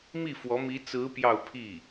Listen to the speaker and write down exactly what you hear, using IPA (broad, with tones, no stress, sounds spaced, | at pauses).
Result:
m i˥˩ f w ɔ˧˥ m i˧˥ t͡s ɹ̩˧˥ p j ɑ˥˧ ʊ̯ pʰ i˥˩